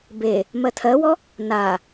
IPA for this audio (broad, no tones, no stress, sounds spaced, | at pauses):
b e | m ɜ tʰ ɜ w ɔ | n a